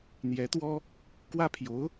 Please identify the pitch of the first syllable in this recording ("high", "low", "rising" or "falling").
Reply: rising